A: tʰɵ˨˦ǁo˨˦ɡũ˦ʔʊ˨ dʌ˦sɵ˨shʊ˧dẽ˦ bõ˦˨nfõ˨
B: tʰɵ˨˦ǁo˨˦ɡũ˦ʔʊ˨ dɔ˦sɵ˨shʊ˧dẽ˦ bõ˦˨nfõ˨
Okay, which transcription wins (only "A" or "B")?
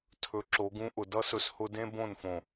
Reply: A